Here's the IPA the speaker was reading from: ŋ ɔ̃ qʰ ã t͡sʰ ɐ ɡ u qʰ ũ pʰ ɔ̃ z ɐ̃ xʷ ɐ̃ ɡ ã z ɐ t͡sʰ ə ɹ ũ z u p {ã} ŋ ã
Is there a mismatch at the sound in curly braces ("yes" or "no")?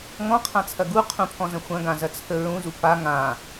yes